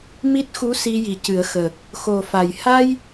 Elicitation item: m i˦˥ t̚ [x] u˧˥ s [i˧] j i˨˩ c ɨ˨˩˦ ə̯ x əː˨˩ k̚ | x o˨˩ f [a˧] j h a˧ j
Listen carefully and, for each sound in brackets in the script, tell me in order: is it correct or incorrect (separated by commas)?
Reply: correct, correct, incorrect